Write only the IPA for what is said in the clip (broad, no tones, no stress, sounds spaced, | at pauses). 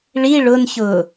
ɭ i ɭ ʊ n ç ʊː